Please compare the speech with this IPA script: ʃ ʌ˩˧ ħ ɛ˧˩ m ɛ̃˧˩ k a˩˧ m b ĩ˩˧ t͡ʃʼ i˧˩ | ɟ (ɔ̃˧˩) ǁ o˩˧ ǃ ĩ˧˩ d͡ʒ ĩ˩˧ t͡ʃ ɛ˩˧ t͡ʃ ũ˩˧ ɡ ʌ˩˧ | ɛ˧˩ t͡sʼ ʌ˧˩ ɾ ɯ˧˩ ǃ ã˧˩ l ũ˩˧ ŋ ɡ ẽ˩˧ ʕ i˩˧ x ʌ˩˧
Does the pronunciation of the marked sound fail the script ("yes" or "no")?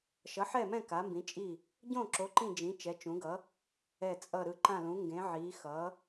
yes